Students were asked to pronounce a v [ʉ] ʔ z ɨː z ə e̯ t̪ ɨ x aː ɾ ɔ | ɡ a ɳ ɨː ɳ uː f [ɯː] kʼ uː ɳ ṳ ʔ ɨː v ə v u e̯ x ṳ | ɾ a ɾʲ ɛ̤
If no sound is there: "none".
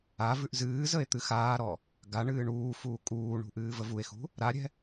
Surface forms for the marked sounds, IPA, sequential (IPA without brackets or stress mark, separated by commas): ʉ, uː